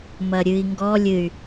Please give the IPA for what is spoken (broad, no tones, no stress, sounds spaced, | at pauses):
m ɐ ɾʲ ɨ i̯ ŋ ɡ ɔ lʲ ɨ y̯